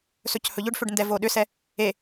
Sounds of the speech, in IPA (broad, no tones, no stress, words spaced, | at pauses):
sɵchɵʎʏɖfʏɖ ndɛvoɗʏsɛ | e